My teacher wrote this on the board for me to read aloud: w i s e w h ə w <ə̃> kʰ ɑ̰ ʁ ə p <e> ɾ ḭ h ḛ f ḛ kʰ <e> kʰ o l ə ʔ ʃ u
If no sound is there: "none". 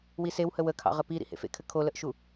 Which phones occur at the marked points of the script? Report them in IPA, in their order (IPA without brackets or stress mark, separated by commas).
ə, i, ɘ